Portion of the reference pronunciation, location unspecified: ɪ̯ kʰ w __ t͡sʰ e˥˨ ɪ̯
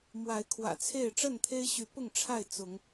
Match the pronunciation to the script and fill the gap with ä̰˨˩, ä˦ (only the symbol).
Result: ä̰˨˩